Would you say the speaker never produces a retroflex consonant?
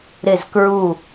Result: yes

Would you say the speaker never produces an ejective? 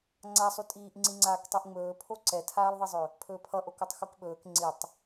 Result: no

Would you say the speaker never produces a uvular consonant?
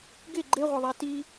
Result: no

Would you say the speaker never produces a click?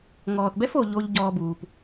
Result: yes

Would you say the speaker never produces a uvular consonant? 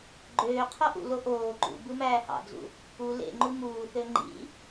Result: no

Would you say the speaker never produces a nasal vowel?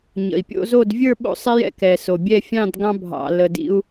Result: no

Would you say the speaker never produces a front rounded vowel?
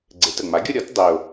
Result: yes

